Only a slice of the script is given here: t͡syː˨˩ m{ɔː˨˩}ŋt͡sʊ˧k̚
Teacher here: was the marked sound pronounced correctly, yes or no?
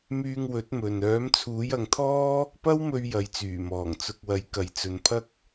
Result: yes